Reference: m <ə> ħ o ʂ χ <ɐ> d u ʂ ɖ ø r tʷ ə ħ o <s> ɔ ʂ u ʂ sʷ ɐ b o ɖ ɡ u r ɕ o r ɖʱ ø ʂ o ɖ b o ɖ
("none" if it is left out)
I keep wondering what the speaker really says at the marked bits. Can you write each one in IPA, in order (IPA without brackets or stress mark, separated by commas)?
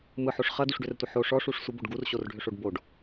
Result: ɯ, ɐ, ʂ